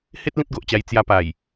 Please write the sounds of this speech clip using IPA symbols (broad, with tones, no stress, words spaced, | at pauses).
he˦t̚ lĩ˦t̚ɡo˨ʔt͡ɕa˧j t͡sja˧pa˨˩j